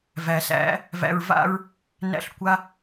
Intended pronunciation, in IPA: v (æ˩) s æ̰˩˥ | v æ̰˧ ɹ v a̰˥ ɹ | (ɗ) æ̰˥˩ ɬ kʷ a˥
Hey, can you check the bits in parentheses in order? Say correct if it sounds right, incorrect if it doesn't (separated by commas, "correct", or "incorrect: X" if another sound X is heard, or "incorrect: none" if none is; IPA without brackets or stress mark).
correct, incorrect: n